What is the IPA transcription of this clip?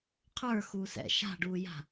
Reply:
qʰə˞xuː sɛ̰ ʃa̤ɖuːja̤

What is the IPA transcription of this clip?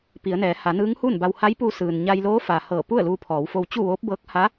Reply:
pi˩˧ə̯nɛː˩˧ ha˩˧nɯː˧˥ŋhuː˥˨nba˧w ha˧˥jpu˧sɯː˩n ɲa˧jloː˧˥fa˩ hɤː˧˩ pu˥˨ə̯luː˧pʰɔː˩˧wfo˧w t͡ɕu˥˨ʋoː˧˥p̚bɤː˧˥k̚ ha˧˥

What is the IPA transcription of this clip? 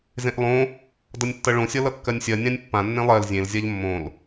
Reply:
zẽʔlˠõ | dʌnʲtːʌɭõ sʲʌlʌkːɜnʲsʲɜ nʲãnʲpːã nːẽlˠɜl zʲẽl zʲaʎmːõl

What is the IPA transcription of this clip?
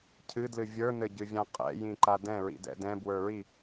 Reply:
cʰɨdlɨ vʲə˞nɘɟɨvʲã qʼɛ̰jĩǃa dɛ̃ɹḭdɛ̰ dɛ̃bwə˞ɹi

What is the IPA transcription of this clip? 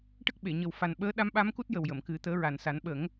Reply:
ʈə˦˥k̚ɓe˨˩˨ ɲə˨˩wfa˨˩n ɓəː˧˥ ɗa˧˥mɓa˧˥mku˦˥t̚ jə˨˩wjə˨˩˨mkɨ˨˩˦ t̪əː˧˥ɹa˨˩n sa˨˩˦nɓə˨˩˦ŋ

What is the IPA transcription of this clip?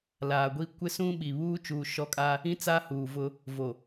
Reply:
laː˨ɡʷi˦ kʷɪ˦sũ˦ɓi˨ βuː˦t͡ʃuː˨ ʃɔ˦kʼa˦ | ĩ˦t͡sa˦huː˨vʊ˦ | vo˨

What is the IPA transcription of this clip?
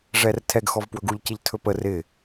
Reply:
ʐɛrtʰɛɡxɔv pwɵɡuʎ cɪʎtʰɵpə rɪ

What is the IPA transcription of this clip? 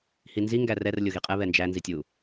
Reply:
hinzi ŋɡærɛr lʲoɣiqʼɛ βɛnd͡ʒæ nzitʲu

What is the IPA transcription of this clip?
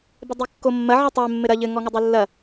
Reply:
bedˤikːomːɐ ʕɨtˤɛ mːɘɾɐ ʎɘ ŋɔŋodˤolːɐ

